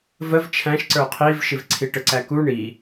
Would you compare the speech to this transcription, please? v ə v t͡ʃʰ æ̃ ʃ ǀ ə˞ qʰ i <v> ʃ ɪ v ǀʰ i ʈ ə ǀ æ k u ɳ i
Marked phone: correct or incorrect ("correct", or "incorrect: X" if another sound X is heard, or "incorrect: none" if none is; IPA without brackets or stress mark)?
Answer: correct